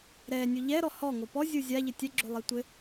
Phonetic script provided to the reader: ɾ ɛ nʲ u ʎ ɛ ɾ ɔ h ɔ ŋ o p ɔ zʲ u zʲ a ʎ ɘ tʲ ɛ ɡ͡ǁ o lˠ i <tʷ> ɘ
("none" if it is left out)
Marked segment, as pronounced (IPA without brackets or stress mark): tʷ